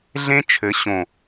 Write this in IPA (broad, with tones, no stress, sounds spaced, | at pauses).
ɮ ẽ˦ t͡ʃʰ ɘ˨˦ ɕ õ˨